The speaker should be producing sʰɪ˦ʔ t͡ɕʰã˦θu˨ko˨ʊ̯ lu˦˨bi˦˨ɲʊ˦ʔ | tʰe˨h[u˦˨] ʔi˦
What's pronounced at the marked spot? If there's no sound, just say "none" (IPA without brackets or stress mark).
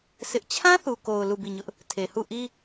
u˦˨